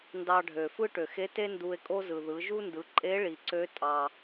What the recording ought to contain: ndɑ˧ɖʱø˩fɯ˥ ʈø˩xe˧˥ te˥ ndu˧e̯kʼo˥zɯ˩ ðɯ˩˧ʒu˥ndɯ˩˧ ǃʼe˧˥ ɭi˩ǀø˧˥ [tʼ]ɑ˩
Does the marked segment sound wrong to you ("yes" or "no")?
no